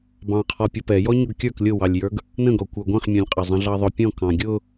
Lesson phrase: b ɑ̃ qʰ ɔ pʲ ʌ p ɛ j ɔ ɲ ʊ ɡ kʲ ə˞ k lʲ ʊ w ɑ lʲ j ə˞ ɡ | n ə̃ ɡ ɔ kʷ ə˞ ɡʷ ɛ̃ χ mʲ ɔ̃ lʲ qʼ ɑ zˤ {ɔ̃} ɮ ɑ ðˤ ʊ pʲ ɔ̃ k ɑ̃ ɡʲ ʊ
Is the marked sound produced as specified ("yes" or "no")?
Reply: no